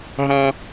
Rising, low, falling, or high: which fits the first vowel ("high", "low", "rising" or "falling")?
high